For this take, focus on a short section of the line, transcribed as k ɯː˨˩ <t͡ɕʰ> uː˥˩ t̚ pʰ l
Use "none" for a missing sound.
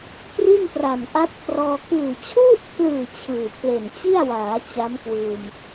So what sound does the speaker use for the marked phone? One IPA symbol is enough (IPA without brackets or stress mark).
t͡ɕʰ